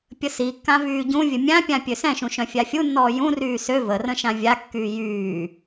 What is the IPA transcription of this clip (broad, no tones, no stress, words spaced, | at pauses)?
pʲəsikːã vyːɟũvʲə mʲãpʲã pʲøsɛ̃ʃũ ʃœ̃fʲafʲunːɔː jũryː sø vərə̃ ʃãvʲakːyː jyː